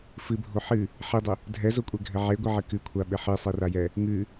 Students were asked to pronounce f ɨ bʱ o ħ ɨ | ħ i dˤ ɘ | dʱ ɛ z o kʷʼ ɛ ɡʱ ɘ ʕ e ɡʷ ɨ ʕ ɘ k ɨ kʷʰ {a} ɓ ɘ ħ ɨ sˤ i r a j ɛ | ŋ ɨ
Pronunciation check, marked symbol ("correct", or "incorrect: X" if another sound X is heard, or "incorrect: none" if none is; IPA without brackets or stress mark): correct